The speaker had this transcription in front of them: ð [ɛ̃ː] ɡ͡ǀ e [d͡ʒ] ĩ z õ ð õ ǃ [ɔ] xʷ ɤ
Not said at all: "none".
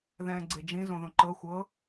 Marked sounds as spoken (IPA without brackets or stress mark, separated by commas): ɛ̃ː, d͡ʒ, ɤ